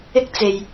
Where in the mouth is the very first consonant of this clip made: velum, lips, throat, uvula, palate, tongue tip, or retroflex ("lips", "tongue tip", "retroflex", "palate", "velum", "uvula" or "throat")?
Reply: velum